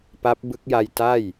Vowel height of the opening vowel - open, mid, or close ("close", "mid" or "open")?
open